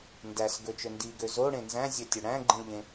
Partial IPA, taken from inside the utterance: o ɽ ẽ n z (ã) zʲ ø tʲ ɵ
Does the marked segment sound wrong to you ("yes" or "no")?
yes